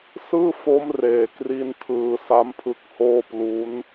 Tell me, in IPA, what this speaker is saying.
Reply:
s ɯː˥˩ f o˦˥ m r eː˨˩ k r i˥˩ n tʰ ɯː˧ s a˦˥ m pʰ ɯ˦˥ k̚ h oː˥˩ p l u˦˥ n

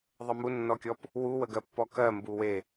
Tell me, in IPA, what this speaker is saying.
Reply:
ðˤ ə m u nː ɔ kʲ ɔ p | w u w ə ɡ ɜ pː ɔ k ɜ m b u w e

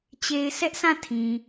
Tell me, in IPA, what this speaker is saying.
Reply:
t͡ɕ e˨ ɪ̯ sʰ ɛ˦ ʔ sʰ ã˦˨ tʰ ĩ˨

